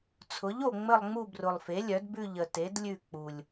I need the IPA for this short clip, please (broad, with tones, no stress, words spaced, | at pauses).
t͡sʰʊ˩˥ʎo˨˩ ŋ͡mə˦˨lˠŋ͡mu˦˨brʊ˨˩lˠfe˩˥ lʲœ˩˥d bʉ˦˨ʎə˨˩ te˩˥dlʲʉ˦˨k͡pu˨˩lʲ